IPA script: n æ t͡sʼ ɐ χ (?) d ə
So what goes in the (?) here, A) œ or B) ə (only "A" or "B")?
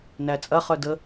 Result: A